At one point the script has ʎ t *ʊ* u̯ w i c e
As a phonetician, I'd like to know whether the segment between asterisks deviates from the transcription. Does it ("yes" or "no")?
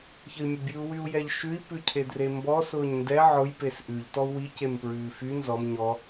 yes